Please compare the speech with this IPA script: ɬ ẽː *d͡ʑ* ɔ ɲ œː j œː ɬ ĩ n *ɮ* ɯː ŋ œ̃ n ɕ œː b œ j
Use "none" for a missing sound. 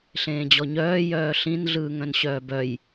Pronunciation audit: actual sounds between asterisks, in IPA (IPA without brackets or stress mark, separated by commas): d͡ʑ, ɮ